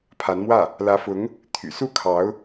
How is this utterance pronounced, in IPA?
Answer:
pʰ a˧˥ n m w ä˥˩ | l ä˧˥ f ʊ˧˥ ŋ | t̪ʰ y̰˨˩ s u˥˩ kʰ ɑ˧˥ ʊ̯

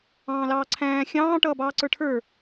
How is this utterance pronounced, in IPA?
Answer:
ɑ̃ː l ɑː ǀʰ æ̃ː xʲ ɑ̃ː ʈ ʌː b ɑː ǀ ə˞ ʈʰ ə˞

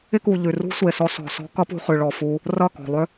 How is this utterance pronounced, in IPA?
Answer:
ɪ˦ k u˨ ʎ ʉ˨ r ṳ˦ sʷ e˨ s ɔ˧ s ɔ̤˧ s ɔ̤˦ k ʌ˦ p ṳ˧ χ ʉ˨ ɭ ɔ˨ f u˧ | r ʌ˦˨ k ɔ̤˨ lˠ ʏ˦

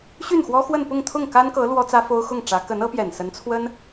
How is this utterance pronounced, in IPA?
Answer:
ɕ y˥˩ n x w ɔ˥ x w ə˥˧ n p ʊ˥˧ ŋ t̪ʰ ʊ˥˩ ŋ k a˥ n k ɤ˧˥ l w ɔ˥ t͡s ä˥ f o˥ ʊ̯ x ʊ˥˩ ŋ ʈ͡ʂ ä˧˥ k ə˧˥ n ɤ˧˥ p j ɛ˨˩ n s ə˧˥ n t͡sʰ w ə˥ n

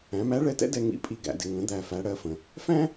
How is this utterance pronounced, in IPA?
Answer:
æ̃˩˧ m æ˧˥ ɭ ɛ˧ t ɛ̰˥ d ɛ˧ ŋ ḭ˧˥ pʼ i˧ ɡ æ̰˩˧ d ɪ˩˧ ŋ ə̃˩˧ d̪ æ˧ f æ˧˥ ɽ ɜ˧˥ f ə̃˩ | f æ̃˥

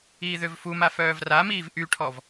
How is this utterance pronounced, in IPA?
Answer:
iː ð ø v f u m a f œː v r a m iː v ʔ y ʈʰ ɔ v

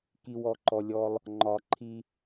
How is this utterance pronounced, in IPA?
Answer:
k i˨ w ɔ˨ ǃ ɔ˨ lʲ ɔ˦ lˠ | ŋ͡ǃ ɒ˨ ǃʰ i˦

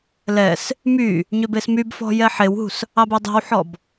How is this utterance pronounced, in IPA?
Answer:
l ɛ s | m y | ɲ ø b e s m y b f ɔ̤ j ɛ ħ e w ɦ ṳ s | ɑ b y dˤ ɛ̤ w ħ ɔ b

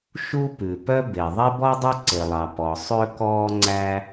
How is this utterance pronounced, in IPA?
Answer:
ʃ u˥ p ʉ˩ p œ˥ b e˩ ðˤ e˥ b ɔ˥ dˤ o˥ ǀ e˩ lˠ ɑ˩ p ɔ˩ sˤ ø˥ k ɔː˥ ŋ͡ǀ æ˥

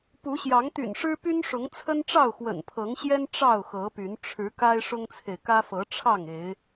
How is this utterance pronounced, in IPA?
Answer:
p u˨˦ ɕ j ɑ˨˦ ŋ t̪ y̰˨˩ n ʂ ɻ̩˦ p y˦ n ʂ ʊ˨˦ ŋ t͡sʰ ə˦ n ʈ͡ʂ ɑ˥˨ ʊ̯ x w ə̰˨˩ n pʰ ɤ˨˦ ŋ ɕ j ɛ˦ n ʈ͡ʂ ɑ˥˨ ʊ̯ x ɤ˨˦ p y˨˦ n ʈ͡ʂʰ ɻ̩˨˦ k a˦ ɪ̯ ʂ ʊ˦ ŋ t͡sʰ e˨ ɪ̯ k ä˦ f ɤ˨˦ ʈ͡ʂʰ ɑ˥˨ ŋ e˨˦ ɪ̯

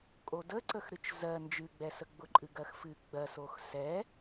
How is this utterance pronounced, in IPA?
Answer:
kʼ o d ə ǀ ə x ɾ ɨ t͡ʃ z ɜ n d͡ʒ ɨ ɡ͡b ɛ s ə ɡ͡b ʊ ǃʼ ɨ ɡ ɜ x f ɨ ɡ͡b ɜ s o x s ɛ

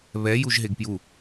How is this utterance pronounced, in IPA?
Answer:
β ɛ j u ʒ ɦ e ɡ p j u

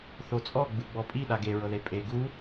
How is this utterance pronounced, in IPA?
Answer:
θ o t͡sʼ ɔ ɡ͡b ɯ ɡ͡b ɔ pʼ i ɗ a ɡ e ɹ ɤ ð e pʼ e ɡ u

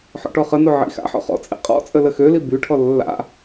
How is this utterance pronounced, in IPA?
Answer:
ħ ɔ̰ ʈ ɔ χ ə n o ʕ ḭ x a̰ ħ ɔ̰ χ ɔ̰ t͡sʼ ḭ qʼ ɔ̰ t͡sʼ ə l ə x ø l i b y ʈʰ ɔ lː a̰

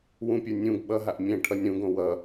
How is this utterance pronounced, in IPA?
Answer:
w ũ pʲ ə˞ nʲ ũ ɡ ɓ ʌ ɦ a ʔ mʲ ɛ̃ ʈʰ ʌ nʲ ɾ ũ ɡ õ w ʌ

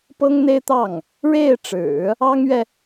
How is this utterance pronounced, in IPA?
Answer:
p ɤ˥ ŋ n̪ e˥ ɪ̯ t̪ ɑ˥˩ ŋ | ɻ e˥˩ ɪ̯ ʈ͡ʂ ɻ̩˨˩˦ | ɑ˥ ŋ ɥ ɛ˨

